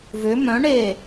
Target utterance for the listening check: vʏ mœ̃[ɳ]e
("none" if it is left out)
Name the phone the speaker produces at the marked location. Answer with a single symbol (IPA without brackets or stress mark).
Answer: ɳ